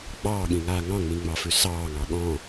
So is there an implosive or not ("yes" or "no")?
yes